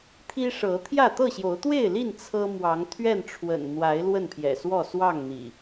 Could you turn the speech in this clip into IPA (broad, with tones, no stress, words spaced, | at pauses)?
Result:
t̪ʰi˦ʂɤ˨˦ t̪ʰjä˥˨ t̪ɤ˥˨ɕjo˨˦ʊ̯t̪we˥˨ɪ̯li˥˨n t͡sʰɤ˦ mwɑ˨˦ŋt̪ʰɥɛ˥˨n ʈ͡ʂʰwə̰˨˩n n̪wa˨˦ɪ̯ lwə˥˨npʰjɛ̰˨˩swɔ˥˨ swɑ˥˨ŋ n̪ḭ˨˩